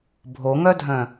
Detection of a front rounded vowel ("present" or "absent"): present